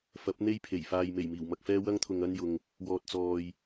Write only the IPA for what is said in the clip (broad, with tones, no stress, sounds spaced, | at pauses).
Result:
f ɐ˨˥ p̚ n̪ e˥ j pʰ e˨˩ j f aː˧ j m e˨˩ j m iː˨˩ w m ɐ˧ k̚ f ɛː˥ w ɐ˥ ŋ t̪ʰ ʊ˧ ŋ ɐ˥ n j ʊ˧ ŋ | w ɔː˧ t̚ t͡s ɔː˧ j